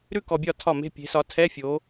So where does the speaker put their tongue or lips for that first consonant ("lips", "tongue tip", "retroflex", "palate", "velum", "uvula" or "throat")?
tongue tip